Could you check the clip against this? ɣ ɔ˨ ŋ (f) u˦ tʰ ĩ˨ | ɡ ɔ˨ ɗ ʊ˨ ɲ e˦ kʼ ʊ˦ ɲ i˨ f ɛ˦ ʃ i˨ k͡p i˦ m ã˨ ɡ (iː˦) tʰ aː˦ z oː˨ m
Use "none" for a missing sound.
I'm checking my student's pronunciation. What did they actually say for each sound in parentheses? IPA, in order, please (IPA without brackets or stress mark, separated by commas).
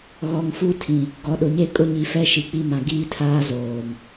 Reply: f, iː˦